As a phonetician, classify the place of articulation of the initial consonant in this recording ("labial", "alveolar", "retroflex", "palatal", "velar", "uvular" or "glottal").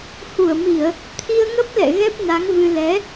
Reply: glottal